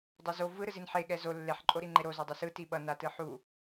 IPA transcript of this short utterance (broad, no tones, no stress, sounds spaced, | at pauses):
dˤ o z o v ɯ ɾ ɯ z i n ħ e ɠ ɛ z o lː e ħ ǃʼ o ɾ i ŋ͡ǃ e ɾ o z o dˤ ɛ s ɯ t i ɓ ʌ n a t ɯ ħ u